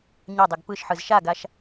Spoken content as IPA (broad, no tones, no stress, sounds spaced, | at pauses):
ɲ a dˤ e ɡ p ɯ ʃ ħ ɯ z ʃ a ɡ a ʃ